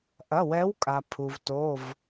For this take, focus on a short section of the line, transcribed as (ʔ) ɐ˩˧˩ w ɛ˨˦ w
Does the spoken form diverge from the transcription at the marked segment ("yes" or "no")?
no